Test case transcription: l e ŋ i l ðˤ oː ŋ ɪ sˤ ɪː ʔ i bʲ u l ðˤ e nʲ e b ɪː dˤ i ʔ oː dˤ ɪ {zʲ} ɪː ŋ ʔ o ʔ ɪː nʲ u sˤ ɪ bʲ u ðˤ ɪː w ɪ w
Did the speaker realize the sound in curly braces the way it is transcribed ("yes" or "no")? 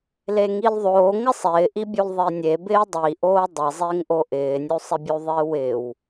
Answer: no